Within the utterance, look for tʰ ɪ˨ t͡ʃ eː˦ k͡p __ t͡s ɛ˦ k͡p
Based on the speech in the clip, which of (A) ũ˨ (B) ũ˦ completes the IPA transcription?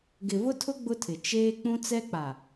B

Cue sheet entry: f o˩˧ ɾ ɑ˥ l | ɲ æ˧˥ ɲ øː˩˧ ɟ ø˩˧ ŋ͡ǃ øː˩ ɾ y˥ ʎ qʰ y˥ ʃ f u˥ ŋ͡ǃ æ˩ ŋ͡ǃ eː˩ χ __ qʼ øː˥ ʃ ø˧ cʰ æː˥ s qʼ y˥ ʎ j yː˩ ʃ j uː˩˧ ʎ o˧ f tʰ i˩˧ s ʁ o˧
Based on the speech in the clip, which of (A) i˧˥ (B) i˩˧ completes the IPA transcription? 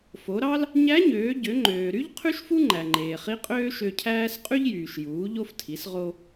A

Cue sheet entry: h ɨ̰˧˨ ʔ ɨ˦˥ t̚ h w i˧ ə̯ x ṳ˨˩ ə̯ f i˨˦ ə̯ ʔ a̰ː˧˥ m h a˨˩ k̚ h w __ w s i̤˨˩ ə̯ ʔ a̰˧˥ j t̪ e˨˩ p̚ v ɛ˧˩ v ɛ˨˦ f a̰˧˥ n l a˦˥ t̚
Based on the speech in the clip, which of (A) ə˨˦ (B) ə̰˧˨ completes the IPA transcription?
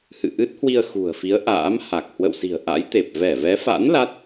B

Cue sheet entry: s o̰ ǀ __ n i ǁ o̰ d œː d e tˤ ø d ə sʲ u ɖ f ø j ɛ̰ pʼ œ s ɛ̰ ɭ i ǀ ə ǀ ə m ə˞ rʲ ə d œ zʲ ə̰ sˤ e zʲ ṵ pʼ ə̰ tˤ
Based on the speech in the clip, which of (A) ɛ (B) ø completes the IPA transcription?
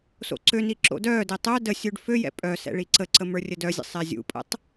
B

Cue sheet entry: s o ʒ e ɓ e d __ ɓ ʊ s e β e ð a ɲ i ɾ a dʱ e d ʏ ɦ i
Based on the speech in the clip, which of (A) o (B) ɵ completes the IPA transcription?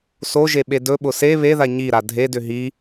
B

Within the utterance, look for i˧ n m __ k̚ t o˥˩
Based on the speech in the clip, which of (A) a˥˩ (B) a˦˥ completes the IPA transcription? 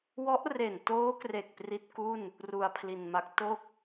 B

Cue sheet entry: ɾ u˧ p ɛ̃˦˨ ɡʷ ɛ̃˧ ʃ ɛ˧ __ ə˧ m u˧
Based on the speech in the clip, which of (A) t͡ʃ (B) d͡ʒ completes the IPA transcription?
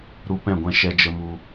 B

